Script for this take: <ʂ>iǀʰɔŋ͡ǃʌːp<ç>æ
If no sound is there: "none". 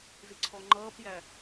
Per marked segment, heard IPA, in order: z, j

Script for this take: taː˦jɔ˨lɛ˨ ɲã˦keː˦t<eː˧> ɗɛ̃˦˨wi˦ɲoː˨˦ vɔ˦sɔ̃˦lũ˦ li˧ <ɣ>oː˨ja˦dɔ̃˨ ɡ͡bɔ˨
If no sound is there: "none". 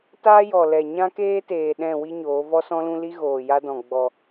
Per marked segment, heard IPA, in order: eː˨, ɣ

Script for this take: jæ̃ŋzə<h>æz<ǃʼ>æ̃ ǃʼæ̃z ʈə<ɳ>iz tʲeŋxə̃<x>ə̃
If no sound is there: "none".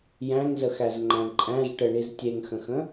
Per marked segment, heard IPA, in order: x, ŋ͡ǃ, ɳ, x

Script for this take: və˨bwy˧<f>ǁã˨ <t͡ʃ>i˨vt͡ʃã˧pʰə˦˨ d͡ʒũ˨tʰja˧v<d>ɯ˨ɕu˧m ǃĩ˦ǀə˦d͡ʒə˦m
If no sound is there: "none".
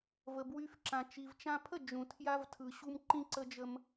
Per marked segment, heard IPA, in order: f, t͡ʃ, tʰ

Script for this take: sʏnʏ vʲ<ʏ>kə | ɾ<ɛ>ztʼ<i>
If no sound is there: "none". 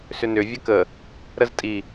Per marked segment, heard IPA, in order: ə, ə, i

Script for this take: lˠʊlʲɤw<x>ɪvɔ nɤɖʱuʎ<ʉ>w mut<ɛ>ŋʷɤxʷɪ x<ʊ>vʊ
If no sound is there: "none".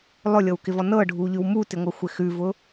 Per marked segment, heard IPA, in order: k, ʉ, ɪ, ʉ

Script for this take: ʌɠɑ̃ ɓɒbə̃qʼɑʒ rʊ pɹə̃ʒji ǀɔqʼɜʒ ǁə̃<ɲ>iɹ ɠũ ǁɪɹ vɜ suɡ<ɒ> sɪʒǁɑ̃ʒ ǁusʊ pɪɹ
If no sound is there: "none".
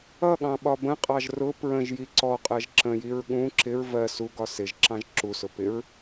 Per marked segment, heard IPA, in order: j, ɒ

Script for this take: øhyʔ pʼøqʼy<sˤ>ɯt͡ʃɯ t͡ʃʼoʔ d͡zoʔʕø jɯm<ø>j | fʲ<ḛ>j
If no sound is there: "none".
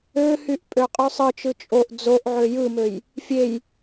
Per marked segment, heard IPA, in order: sˤ, ø, e

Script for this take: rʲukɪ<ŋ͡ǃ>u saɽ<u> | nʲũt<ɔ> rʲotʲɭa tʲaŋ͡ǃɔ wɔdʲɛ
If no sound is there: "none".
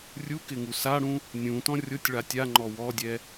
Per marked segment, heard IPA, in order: ŋ, ũ, ɔ̃

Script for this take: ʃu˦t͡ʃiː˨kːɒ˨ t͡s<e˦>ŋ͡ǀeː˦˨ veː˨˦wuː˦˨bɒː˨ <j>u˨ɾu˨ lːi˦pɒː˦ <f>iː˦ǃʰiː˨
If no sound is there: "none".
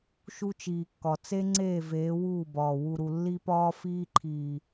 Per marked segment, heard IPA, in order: e˦, w, f

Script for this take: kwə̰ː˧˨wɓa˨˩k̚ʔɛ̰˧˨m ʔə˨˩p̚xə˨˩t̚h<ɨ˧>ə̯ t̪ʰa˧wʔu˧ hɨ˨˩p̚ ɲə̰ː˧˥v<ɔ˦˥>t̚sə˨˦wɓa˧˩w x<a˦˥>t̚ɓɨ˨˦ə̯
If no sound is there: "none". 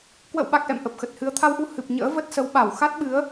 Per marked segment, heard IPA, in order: ɨ˧, ə˦˥, a˦˥

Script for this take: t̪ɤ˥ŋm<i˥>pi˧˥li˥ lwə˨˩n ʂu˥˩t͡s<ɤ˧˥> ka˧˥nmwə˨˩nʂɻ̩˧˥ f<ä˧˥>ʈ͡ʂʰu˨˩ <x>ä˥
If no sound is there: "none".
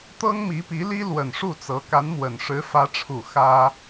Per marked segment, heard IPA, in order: i˧˥, ɤ˧˥, ä˧˥, x

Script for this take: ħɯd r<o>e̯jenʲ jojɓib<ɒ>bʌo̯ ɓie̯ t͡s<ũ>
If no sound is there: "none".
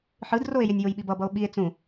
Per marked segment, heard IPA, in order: o, ʌ, ũ

